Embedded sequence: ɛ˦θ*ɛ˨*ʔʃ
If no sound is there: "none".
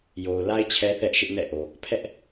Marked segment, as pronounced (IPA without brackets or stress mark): ɛ˦